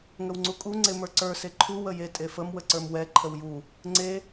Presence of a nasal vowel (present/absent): absent